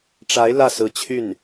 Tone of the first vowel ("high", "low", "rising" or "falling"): rising